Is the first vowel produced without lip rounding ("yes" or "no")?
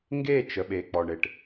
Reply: yes